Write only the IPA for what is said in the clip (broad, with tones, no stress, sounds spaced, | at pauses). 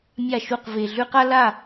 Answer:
mʲ a˥˩ ʃ u˥˩ q v e˨ ɮ ʉ˥ q a˥ l a˥˩